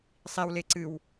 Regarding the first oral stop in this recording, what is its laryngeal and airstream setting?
click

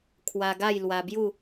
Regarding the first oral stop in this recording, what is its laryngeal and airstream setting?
aspirated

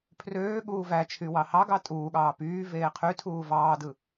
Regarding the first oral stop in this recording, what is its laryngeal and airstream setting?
aspirated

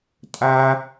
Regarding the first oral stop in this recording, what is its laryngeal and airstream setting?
ejective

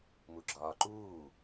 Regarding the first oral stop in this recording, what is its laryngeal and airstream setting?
click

